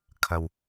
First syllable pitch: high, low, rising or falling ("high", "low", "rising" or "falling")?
low